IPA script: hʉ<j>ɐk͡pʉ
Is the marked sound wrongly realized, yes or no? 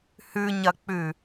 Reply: yes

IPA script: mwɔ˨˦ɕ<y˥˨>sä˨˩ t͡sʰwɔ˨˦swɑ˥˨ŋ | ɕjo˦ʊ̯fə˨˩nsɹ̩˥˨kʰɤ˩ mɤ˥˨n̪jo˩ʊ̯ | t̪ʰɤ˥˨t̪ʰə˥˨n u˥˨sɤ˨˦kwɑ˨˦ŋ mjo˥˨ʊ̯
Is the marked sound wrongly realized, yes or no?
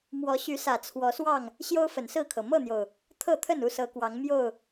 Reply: yes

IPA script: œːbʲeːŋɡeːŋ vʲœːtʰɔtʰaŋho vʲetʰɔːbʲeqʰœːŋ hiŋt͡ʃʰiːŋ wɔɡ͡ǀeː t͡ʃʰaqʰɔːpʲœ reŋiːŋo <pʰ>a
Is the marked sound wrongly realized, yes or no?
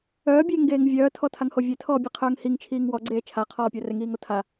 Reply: yes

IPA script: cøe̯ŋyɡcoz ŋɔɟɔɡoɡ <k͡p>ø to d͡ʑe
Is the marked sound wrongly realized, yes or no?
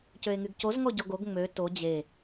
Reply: yes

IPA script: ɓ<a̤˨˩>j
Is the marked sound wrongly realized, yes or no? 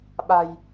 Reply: no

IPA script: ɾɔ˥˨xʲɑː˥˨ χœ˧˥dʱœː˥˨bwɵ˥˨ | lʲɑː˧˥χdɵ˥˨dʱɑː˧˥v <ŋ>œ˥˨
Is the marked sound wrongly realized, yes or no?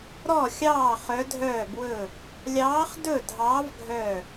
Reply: yes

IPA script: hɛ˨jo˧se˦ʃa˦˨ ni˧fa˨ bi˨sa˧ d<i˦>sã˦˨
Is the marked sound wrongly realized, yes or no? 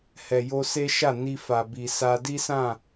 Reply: no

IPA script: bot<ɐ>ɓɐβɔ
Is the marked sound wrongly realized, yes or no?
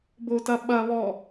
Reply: no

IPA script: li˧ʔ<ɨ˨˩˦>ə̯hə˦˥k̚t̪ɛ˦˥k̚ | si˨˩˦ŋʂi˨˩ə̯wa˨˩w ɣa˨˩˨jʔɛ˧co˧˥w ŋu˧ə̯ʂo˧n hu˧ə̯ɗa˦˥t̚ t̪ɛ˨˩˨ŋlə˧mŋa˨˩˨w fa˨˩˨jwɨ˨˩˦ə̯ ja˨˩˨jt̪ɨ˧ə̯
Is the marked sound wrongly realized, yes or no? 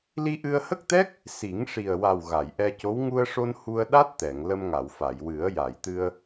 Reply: yes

